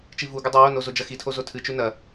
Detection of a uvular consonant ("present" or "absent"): absent